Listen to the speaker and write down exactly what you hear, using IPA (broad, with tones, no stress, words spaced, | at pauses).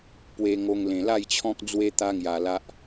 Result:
pwe˧ŋo˧ŋ lẽ˨˩la˥˧jt͡ɕʰɔ̃˦k̚ d͡zwe˦t̪a˦ŋja˧ la˦ʔ